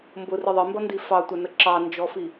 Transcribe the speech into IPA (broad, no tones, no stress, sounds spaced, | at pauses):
m b ʊ r ɪ ðˤ ɪ m b ʌ n d i f ɑ tʷ æ n ə ǁ ɑ n d͡ʒ ɔ f i